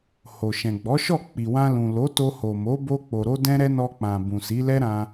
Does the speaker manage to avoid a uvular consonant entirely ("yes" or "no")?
yes